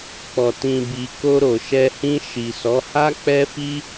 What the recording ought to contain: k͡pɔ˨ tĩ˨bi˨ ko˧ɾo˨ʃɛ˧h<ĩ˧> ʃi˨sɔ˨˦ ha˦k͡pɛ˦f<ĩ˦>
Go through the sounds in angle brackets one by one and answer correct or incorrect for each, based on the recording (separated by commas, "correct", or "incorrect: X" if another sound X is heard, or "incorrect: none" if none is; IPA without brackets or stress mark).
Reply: correct, incorrect: i˦